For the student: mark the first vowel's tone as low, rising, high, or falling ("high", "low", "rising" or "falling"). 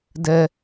high